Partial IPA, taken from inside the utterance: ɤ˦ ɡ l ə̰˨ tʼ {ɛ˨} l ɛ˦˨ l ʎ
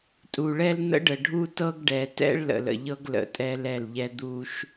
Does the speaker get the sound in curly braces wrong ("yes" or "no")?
yes